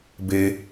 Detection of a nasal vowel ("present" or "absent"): absent